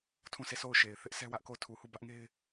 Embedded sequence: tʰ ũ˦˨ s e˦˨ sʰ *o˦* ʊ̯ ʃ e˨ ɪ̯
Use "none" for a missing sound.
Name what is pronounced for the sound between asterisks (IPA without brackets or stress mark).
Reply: o˦˨